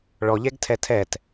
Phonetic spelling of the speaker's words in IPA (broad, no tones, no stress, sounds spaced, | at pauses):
ɭ ɔ ʎ ɛ ɡ tʰ ɛ tʰ ɛ t